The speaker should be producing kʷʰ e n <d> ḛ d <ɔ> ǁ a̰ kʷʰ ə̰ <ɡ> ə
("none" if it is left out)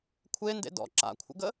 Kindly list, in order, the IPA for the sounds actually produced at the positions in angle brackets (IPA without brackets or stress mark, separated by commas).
d, ɔ̰, ɡ